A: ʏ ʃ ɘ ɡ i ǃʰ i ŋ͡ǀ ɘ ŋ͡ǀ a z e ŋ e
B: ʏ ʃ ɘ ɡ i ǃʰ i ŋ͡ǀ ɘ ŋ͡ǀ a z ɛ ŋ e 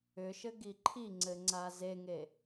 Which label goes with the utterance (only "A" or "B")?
A